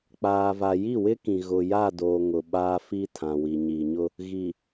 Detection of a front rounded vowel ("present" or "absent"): absent